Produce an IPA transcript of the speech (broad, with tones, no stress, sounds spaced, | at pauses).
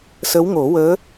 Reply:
s ə˧˥ w ŋ o˨˩˦ w əː˧˥